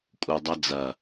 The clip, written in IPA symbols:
kʼ u˨ dˤ ɐ˦ d͡z ɐ˨

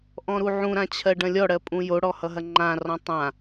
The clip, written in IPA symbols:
ʔ ɔ̃ ɾ u ʕ ũ ɾ ã t͡ɕʰ ɜ ɖ ɐ̃ lʲ ɔ ɽ ɜ pʼ ũ j o ɽ ɔ h ʌ ɦ ɐ ŋ͡ǃ ã r ɔ̃ tˤ ã

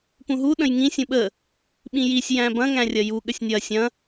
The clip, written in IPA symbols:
p ũ ɦ u ɗ ə̃ j ŋ ĩ sʲ ũ ɓ ə | ɓ ĩ j i sʲ j æ̃ b ɐ̃ ŋ æ̃ rʲ ɐ j u ɠ ə sʲ nʲ ɐ sʲ ɐ̃

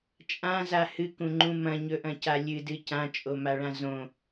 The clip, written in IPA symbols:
t͡ʃʼ ã z a h ɨ k ũ ŋ͡ǃ ũ m ɐ̃ ɲ ɵ ʔ ɐ̃ c a lʲ ɨ d ɨ c ã t͡ʃʼ o m a ɭ ã z õ

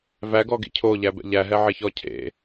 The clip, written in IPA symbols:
v æ ɡ ɔ ɡ ḭ cʰ o ʎ æ b ɛ̰ ʎ æ ɦ ɛ ʕ e ç ɔ cʰ ḛ

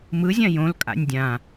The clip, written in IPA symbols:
m ɯ zʲ ã j õ l kʼ a̰ nʲ dʲ ã

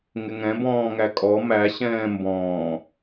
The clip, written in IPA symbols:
ŋ ɪ ŋ ɛ̃ b ɔ̃ː ŋ æ kʼ ɔ m æ ɕ ɛ̃ː m b ɔ̃ː

